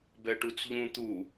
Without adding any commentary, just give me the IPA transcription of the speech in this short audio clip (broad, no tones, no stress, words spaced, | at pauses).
bɛʈut͡sʎũ t̪u